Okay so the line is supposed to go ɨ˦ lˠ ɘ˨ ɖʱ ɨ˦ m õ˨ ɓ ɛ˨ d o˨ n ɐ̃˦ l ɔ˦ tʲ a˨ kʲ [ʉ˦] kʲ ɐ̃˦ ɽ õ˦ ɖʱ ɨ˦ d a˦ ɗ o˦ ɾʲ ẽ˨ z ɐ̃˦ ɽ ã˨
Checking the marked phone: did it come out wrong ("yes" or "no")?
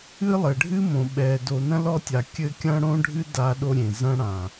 yes